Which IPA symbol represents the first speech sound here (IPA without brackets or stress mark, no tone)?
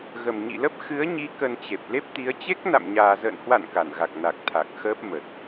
ɣ